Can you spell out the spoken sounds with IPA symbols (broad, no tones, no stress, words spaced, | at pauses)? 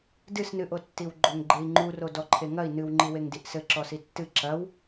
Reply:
dɨsnɨʔotːiw ɡ͡ǃoŋɡ͡ǃei̯ŋ͡ǃuro dɔǃʰeŋɐi̯ nɨwŋ͡ǃi weŋdiʔsɘ ǁɔsitːɨ ǁɐw